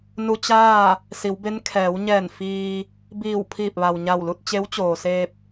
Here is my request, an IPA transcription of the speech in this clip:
nu˧t͡ɕaː˥˨ | si˩˧wbe˧˥n kʰɛː˩˧wɲɛː˧˩n fiː˧ | biː˧˩w pʰiː˧˩p̚ʋa˩w ɲa˧˩wlu˥˨t̚ t͡ɕe˧˥wt͡ɕoː˩seː˧p̚

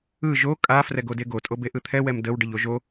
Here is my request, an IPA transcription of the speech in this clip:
ɯ ʒo kʼa frɛɡodeɡo tʼobeʔɯt̪ʰɛ wɛmdəw ɖəʎoʒo

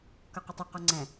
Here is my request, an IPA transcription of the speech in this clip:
kɒqɪtˤə qɔŋ͡ǀæ̃

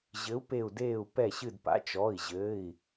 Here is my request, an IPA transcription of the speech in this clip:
ʑɘ˨˥u̯pe˧˩u̯ deː˧˩u̯ pɛ˧˩ɕɨ˧˩dpa̰˨˥ t͡ʃɔ˩˧˩i̯ʑɘː˩˧˩i̯

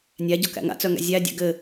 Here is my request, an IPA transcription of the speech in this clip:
nʲæɟɔkæ̰ ŋa̰t͡sœŋæ̰ zʲædʲæ̰ ɡɘ

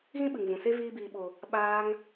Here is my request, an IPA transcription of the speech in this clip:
ɣĩ˦ɓɨ˨ŋvũ˨se˦ viː˧biː˨ɓo˨ | ɓaː˧ŋ

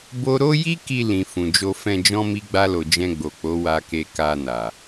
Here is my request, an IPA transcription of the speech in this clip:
bo˦ ɾo˦ ji˦ki˧ lĩ˨ fũ˨ d͡ʒo˧fɛ̃˧d͡ʒɔ̃˦ mi˦ɡ͡ba˦lo˧ d͡ʒɛ̃˧ɡ͡bo˨k͡po˨˦ wa˧ke˧ ka˧na˨

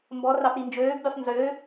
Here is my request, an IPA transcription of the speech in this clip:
mbɔ rɑpɾind͡ʒøːɡbʲusˤ nzø

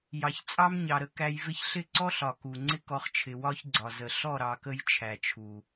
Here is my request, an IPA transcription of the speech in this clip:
jɑ˨çt͡sʼɑ˦mɲɑ˨ɾə˧ kæ˧jvɪ˦ç ɬɪ˦˨ǀɔ˦ɬɒ˨ ku˨ŋ͡ǀɪ˦ kɔ˦χt͡ʃʰɪ˧ wɒ˦çɡ͡ǀɒ˨zə˨ ɬɔ˦˨ɾɑ˨kə˧j t͡ʃʰæ˨t͡ʃʰu˨

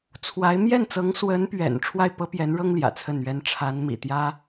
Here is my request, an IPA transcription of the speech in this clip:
t͡sʰwa˧˥ɪ̯ mjɛ˥˩nt͡sɤ˧˥ŋswə˧˥npɥɛ̰˨˩n ʈ͡ʂʰwa˥˩ɪ̯pɤ˥pjɛ˧˥nɻɤ˥ŋ ljä̰˨˩t͡sʰə˥˩nɥɛ˥n ʈ͡ʂʰa˧˥nmḭ˨˩t̪jä˥

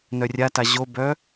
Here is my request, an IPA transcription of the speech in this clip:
nœrʲata ʑobœ

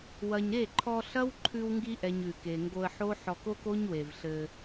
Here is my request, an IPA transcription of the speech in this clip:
wɐ˨ɲɾe˦˨ǃʰɔ˧ ɬɐ˦wǃʰʉ˧wŋɡi˧ʔɛ˨ɲ ʉ˨ke˨ŋɡo˧ə̯ ħo˦ħɔ˧k o˦ko˦ɲwe˨vɬɘ˧

